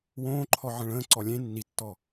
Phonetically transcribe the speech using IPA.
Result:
wõːǃʰɔ ʕə̃ɭə̃ːǀɔ lʲẽ nːitːɔ

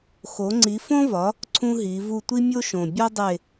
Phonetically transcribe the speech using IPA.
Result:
xo˨˥ŋ͡ǀi˨˥fõ˥ vɒ˨˥ | ǀʰũ˥ɦi˨˥ vu˦˨tʷi˥ mʲo˥ʃõ˨˩ bʲɒ˥dˤe˦˨

